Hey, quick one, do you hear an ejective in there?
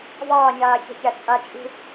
yes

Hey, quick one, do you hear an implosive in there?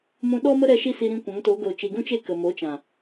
yes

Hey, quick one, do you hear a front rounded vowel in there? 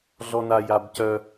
yes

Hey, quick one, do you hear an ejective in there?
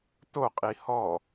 yes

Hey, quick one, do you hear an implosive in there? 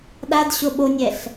yes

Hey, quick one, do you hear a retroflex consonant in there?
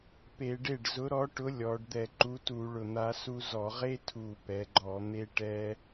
yes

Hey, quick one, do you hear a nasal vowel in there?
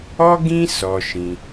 yes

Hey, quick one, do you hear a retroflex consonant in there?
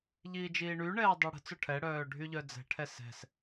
yes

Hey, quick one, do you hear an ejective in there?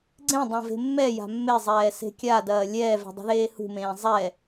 no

